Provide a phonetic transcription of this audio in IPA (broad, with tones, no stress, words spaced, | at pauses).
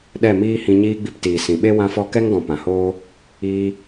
ɗɛ˦˨miː˦hĩ˧ ɲiː˧ɡ͡bi˧p tiː˨sĩ˨ɓe˦ wã˧fɔ˧kɛ˦ŋɡɔ̃˨ pã˨hoː˦ | iː˦